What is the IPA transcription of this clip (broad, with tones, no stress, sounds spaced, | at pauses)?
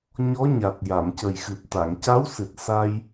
ɲ ɔ˧˥ ɲ a˨˩ t̚ j a˨˩˨ m c ə˨˩ j x ɨ˨˩ p̚ t̪ a˨˩˨ ŋ c a˧˥ w s ɨ˨˩ t̚ s a˧ j